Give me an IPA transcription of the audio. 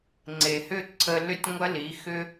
ŋ͡ǀ e˨ h ʏ˦˨ ǀʰ ə˧ l ʏ˦ tʲ ŋʷ ɐ˦ l i˨˦ x ʏ˦

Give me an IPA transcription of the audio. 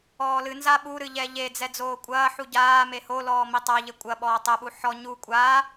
ɔː l ɨ n z a ɓ u ɾ ɨ ʎ ɛ ʎ e d͡z ɛ d͡z oː kʷʼ ɐː ħ u ɟ aː m e h o l ɔː m i tˤ a ʎ ɘ kʷʼ ɐ ɓ ɔː tˤ ɛ ɓ u ħ ɔ ɲ u kʷʼ a

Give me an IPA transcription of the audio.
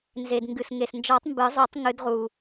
n z e˩ d ŋ ɡ ɨ˩ s ŋ e˩ s n d͡ʒ ɔ˨˩˦ tˤ m b ɨ˨˩˦ zˤ u˨˩˦ tˤ ŋ ɨ˨˩˦ d ʁ u˩

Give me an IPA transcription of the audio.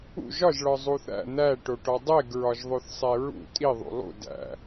ṵ ʒ ɒ ʒ ɭ ɒ zˤ u θ æ̰ n̪ æ ʈ o ʈ ɒ dˤ e ɡ ɹ ɒ ʒ ðˤ o θ sˤ e ɹ ṵ tʼ i ðˤ ṵ lˠ ṵ d æ̰

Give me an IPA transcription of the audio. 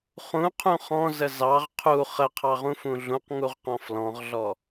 χ ũ qʰ ũ χ ɔ̃ z ə z ɑ ʁ qʰ u χ ə qʰ ɑ ʁ ũ f ũ ɮ ũ q ŋ u ʁ q ɔ̃ f l ɔ̃ ʁ ɮ ɔ

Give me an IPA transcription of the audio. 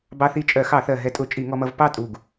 b ɑ˧ θ i˧ t͡ʃʼ ɜ˧˩˧ x ɑ˧˩˧ θ ɜ˨˩ ɦ ɛ˧˩˧ tʼ ʊ˧˩˧ t͡ʃʼ i˧˩˧ ŋ ɔ˧ m ʌ˧ v p ɑ˥˨ tʼ u˨˩ ɡ

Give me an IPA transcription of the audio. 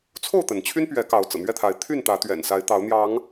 t͡sʰ o˥˨ ʊ̯ t̪ ə˩ n t͡ɕʰ y˦ n p ɥ ɛ˨˦ k ɑ˨˦ ʊ̯ t͡s ɤ̰˨˩ n̪ ɥ ɛ˥˨ t̪ʰ a˨˦ ɪ̯ t̪ʰ y˥˨ n t̪ ä˨˦ t̪ ɥ ɛ̰˨˩ n s a˨˦ ɪ̯ t̪ ɑ˨˦ ʊ̯ n̪ j ɑ˨˦ ŋ

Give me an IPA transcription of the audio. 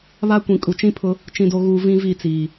β a˦ kʷ ĩ˨ kʼ u˨ t͡ʃ ĩ˦ pʰ ʊ˦ | t͡ʃ ĩ˨ d o˨ ɣ uː˨ v ĩ˦ v i˦˨ t͡s iː˨

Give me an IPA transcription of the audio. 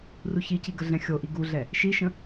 r u ç i c i ɡ ə ɮ ɛ̃ xʲ o ʔ i ɡ u ɮ ɛ | ʃ i ʃ ə̃

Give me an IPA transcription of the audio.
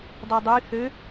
dˤ ʉ dˤ y θ ø

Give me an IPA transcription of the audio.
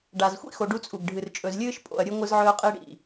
ɖ a˨ z xʷ ḭ˦ x o˨ ɖ u˦ t͡sʼ u˨ ɡ ɖʱ ɨ˨ r t͡ʃʼ ɵ˨ z lʲ ɨː˦ ʃ pʼ o̰˨ ɐ̯ ɾʲ ɨ˦ ŋʷ ɨ˦ z ʕ ɵː˦ qʼ i˦ ɽ ḭ˨

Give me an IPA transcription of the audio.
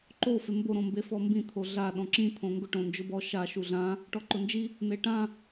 ǃ o f e m b o ɾ õ m b e f ɔ m b ĩ t̪ʰ o ɮ a ɗ ɔ̃ ǁ ĩ t̪ʰ õ ŋ ɡ ʊ ʈ õ n d͡ʒ ʊ b ɔ ʃ a ʃ u ɮ ã | ʈ ɔ ǃ ʊ n d͡ʒ i | n̪ e ʈ ã

